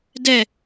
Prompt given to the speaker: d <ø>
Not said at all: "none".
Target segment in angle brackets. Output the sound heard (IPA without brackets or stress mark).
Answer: ɛ